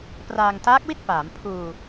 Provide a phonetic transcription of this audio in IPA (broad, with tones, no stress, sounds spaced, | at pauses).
p r aː˧ ŋ t aː˦˥ k̚ w i˥˩ t̚ p aː˩˦ m pʰ uː˧